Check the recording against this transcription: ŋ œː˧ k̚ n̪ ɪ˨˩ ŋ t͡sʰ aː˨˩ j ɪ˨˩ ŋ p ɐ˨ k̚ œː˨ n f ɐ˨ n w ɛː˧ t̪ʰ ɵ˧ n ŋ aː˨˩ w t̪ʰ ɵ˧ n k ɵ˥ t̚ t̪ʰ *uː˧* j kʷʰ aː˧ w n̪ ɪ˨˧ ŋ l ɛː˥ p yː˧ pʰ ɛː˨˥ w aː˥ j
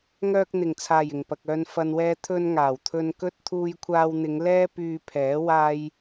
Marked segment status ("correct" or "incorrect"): correct